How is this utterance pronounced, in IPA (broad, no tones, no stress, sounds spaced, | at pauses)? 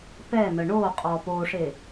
p ɛ n ə ɳ o qʼ ɔ p o ʂ e